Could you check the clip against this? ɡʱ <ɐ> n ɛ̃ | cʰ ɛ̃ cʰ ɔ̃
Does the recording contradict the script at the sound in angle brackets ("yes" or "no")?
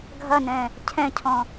no